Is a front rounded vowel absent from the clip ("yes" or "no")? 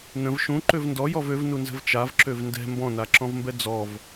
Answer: no